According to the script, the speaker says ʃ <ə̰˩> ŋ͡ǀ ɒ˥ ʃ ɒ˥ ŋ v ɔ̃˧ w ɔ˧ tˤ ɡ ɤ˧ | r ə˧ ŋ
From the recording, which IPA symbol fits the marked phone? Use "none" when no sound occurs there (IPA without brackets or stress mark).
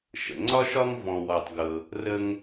ə̰˩